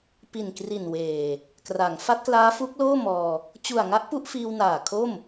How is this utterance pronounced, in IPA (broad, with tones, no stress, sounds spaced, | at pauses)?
p i˨˩ n k r i˨˩ n w eː˨˩ | k r a˩˦ ŋ f a˦˥ t̚ k l aː˦˥ f u˦˥ k̚ l oː˥˩ m ɔː˧ | t͡ɕ u˨˩ a̯ ŋ a˦˥ ʔ p u˥˩ ʔ f iː˧ w n aː˨˩ kʰ o˥˩ m